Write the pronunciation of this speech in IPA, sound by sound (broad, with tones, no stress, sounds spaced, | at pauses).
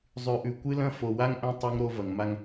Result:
zˤ ʉ˨ ʔ ʉ˨ kʷ ɨ˦ l ɐ̃˦ f o˨ w a˦ ŋ ʔ ɐ̃˦ tˤ u˦ ŋ ɾ o˦ v ɐ˨ ŋ m a˦ ŋ